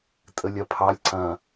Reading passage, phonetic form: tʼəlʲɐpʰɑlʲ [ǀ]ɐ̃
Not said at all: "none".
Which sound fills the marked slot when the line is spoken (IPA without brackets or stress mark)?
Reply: ǀ